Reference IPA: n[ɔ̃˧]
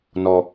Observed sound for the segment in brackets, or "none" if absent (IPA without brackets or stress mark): ɔ˧